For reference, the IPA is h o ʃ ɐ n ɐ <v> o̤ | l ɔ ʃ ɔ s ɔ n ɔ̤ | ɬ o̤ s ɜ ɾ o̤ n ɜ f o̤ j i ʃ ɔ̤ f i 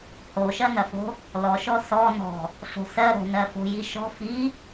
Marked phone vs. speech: incorrect: f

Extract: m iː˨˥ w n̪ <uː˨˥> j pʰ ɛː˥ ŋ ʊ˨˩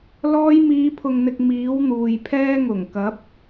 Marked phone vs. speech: incorrect: uː˨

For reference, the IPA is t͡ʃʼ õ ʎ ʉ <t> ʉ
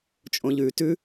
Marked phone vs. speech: correct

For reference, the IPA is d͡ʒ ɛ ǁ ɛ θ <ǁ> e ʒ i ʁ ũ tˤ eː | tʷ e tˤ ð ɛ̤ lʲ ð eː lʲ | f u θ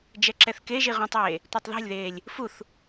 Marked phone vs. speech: incorrect: k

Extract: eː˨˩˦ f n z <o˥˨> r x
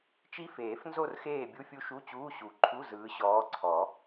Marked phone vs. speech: correct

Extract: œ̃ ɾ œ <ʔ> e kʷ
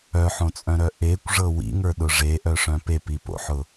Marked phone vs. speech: correct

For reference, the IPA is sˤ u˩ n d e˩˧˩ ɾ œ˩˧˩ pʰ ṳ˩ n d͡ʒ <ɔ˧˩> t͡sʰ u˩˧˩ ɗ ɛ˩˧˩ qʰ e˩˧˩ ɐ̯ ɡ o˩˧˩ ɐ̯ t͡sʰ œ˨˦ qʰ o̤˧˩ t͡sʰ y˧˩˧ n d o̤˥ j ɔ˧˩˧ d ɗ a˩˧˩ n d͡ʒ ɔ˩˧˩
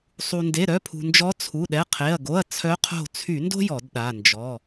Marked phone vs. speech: incorrect: ɔ˨˦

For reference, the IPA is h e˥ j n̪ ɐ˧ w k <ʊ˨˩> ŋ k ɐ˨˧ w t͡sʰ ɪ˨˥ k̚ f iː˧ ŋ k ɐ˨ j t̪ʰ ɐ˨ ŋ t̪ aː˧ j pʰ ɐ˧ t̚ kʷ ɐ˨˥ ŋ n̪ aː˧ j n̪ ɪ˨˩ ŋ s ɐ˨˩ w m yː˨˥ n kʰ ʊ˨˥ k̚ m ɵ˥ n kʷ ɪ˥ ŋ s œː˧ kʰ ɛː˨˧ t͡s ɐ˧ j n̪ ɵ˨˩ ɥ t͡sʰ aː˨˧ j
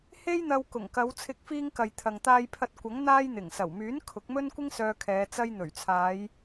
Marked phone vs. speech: correct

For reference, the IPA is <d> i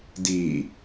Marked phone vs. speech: correct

